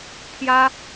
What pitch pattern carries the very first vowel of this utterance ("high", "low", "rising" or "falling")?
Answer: high